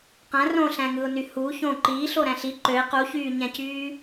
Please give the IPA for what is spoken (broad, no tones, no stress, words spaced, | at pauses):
qæ̃ rõɬæ̃ŋɯʊ̯ny hu çõ ǃiːɬoɾæ̃ɬ i ǃøɪ̯ quçyːɲæ̃cyː